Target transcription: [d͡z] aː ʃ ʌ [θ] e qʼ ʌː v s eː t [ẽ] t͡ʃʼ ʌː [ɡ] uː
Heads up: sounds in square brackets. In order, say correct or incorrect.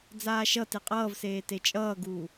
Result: correct, incorrect: t, incorrect: e, correct

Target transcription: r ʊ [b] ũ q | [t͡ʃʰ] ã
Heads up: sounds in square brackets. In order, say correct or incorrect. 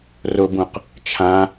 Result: correct, correct

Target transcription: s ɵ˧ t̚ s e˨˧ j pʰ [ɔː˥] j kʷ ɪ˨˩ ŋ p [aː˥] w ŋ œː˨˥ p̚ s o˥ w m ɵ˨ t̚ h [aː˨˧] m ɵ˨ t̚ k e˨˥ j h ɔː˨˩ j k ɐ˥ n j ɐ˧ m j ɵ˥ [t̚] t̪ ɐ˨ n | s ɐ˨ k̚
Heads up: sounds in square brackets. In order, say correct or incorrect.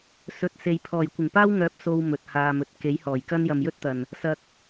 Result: incorrect: ɔː˨˩, correct, incorrect: aː˧, correct

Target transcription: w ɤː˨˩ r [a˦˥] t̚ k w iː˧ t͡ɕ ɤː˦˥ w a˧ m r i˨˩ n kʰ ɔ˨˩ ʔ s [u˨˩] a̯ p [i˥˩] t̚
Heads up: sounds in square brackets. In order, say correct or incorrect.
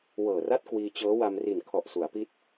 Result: incorrect: a˥˩, incorrect: u˩˦, incorrect: i˦˥

